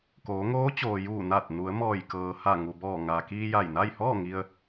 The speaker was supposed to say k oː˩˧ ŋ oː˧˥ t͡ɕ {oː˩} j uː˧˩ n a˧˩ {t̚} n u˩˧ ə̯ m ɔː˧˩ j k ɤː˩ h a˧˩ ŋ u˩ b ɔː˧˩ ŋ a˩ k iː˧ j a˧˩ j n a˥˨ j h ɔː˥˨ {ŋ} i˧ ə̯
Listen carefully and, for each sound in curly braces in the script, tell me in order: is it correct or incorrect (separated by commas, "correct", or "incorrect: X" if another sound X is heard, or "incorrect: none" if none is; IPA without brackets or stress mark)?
correct, correct, correct